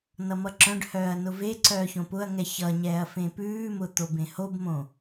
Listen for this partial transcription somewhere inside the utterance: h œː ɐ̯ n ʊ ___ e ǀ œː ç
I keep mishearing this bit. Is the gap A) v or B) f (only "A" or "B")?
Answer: A